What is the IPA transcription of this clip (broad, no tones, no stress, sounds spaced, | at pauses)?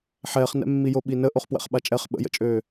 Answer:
ħ ɛː χ n ɛ̰ mː i j o ɓ i n ə ʔ o χ p w ɛ̰ χ ɓ a t͡ʃʼ ɛ χ ɓ ə̰ j ə̰ t͡ʃʼ øː